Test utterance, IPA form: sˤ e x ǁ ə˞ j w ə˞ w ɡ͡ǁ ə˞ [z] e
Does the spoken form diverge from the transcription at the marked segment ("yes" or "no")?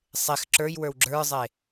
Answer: yes